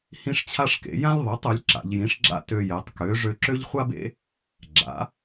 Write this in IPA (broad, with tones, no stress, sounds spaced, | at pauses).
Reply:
h ĩ˥ ʂ t͡ɕʰ a˥ ʂ k ḛ˩˥ j ã˥ lʲ ðˤ i˩˥ tˤ ø˩˥ lʲ ǁ a̰˩˧ ʎ j ĩ˩˥ ʂ ɡ͡ǁ a̰˥ t ø˧ j e˩˧ tˤ k ø˩˥ ʐ ø˧ ǁ ø˥ ʎ χʷ a˥ b ḛ˥ | ɡ͡ǁ a̰˩˥